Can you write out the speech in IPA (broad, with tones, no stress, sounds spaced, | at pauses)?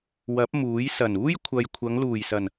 w ɐ˨˥ p̚ m uː˨˥ j s ɐ˨˩ n uː˥ j kʷʰ ɐ˨ j kʷʰ ɐ˨˧ ŋ l uː˨˩ j s ɐ˨˩ n